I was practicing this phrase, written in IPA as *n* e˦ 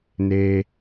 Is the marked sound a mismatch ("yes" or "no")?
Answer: no